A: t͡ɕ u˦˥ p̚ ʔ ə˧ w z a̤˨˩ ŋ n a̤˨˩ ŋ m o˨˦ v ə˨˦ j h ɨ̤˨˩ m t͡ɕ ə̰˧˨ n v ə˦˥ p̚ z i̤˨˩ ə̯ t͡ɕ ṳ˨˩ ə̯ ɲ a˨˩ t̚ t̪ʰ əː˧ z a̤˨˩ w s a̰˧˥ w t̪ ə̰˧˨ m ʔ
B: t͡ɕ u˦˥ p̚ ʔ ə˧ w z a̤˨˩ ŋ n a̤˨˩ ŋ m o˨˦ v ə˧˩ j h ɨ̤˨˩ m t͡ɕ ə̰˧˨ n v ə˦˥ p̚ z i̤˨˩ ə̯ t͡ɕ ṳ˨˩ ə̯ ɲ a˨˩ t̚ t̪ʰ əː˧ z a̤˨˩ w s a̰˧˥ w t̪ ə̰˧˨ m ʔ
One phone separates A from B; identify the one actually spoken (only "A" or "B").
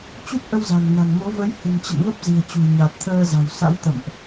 A